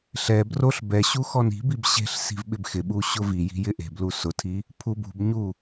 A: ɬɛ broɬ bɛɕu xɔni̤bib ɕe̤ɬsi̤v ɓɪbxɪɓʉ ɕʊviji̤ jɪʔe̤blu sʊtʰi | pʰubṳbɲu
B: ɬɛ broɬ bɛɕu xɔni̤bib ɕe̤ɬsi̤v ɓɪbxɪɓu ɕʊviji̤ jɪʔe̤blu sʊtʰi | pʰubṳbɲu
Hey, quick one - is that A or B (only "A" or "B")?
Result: B